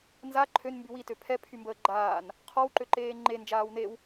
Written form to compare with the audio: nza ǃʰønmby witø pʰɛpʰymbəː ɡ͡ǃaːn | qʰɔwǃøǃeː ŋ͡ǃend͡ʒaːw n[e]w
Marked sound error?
no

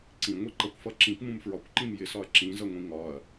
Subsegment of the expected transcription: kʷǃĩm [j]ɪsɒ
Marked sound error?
no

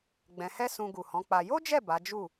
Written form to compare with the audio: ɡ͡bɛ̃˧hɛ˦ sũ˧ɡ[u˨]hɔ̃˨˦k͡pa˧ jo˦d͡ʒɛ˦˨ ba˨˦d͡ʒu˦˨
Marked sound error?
no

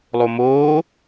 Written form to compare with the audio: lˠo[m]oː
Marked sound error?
no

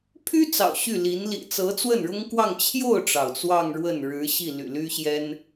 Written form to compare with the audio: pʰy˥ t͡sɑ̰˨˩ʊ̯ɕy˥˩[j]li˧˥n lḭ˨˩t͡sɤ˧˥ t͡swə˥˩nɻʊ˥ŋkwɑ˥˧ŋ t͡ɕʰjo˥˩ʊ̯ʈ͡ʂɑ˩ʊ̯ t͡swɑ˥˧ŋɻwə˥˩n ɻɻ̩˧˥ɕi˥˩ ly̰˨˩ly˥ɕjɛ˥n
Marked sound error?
yes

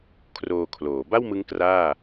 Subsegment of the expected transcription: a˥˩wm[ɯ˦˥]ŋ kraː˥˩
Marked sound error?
no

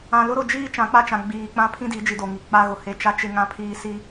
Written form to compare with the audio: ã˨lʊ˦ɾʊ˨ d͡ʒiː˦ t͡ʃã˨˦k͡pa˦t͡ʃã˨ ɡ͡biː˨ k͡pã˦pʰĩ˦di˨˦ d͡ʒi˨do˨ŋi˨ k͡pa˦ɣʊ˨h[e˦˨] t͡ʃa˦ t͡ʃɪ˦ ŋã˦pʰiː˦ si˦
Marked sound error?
no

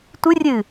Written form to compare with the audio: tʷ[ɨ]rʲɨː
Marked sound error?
no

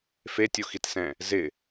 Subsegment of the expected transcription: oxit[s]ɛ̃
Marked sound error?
no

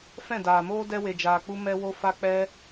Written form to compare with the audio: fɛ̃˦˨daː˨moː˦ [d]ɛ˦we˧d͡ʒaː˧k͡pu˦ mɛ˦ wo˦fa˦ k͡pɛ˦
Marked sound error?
no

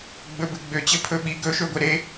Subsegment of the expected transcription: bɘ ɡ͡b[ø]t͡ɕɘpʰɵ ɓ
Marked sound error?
no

